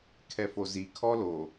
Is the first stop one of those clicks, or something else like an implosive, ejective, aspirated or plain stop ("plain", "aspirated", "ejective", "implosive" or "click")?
aspirated